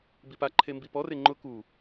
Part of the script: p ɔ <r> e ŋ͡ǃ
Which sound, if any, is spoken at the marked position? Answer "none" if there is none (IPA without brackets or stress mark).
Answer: r